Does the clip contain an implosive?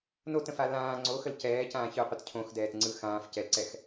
no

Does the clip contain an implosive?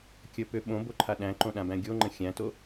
yes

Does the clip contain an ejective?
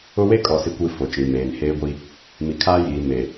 yes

